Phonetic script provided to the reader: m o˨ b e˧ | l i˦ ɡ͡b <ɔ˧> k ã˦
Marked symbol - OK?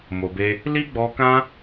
yes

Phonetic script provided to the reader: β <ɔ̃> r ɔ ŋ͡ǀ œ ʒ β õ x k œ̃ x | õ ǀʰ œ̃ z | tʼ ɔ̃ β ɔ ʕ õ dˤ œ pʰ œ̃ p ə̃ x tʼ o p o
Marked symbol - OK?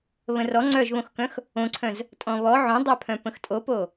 no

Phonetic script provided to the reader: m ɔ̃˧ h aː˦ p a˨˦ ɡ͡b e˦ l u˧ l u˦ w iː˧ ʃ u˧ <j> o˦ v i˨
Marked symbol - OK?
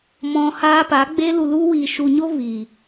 no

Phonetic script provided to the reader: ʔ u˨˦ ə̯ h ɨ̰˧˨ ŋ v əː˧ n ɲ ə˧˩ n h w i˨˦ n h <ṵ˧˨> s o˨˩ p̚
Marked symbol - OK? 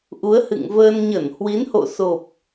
no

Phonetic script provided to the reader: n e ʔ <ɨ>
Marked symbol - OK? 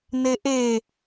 no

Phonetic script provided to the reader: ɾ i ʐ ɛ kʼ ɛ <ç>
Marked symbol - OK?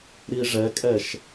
no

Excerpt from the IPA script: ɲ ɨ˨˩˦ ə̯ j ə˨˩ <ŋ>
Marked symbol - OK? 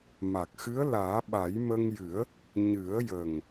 yes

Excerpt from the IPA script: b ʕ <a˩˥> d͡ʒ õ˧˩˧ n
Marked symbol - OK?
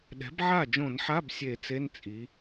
no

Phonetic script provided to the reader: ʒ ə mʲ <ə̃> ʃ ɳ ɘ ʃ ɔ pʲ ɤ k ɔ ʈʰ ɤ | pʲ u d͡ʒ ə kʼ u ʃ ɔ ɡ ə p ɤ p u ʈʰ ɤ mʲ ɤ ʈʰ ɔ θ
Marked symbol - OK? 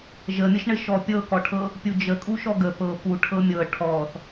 no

